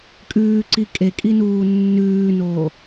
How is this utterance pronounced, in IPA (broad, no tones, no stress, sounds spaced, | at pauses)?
kʼ ʉː ǀ i kʼ e kʼ i n uː nː ʉː n oː